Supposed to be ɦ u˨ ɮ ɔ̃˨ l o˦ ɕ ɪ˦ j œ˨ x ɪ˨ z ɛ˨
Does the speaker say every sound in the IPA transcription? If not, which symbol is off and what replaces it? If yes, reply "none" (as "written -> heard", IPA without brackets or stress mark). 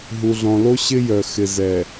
none